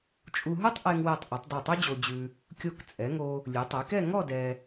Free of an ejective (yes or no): no